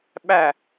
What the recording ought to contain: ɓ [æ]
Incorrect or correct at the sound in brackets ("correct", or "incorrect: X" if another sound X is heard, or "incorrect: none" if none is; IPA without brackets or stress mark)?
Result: correct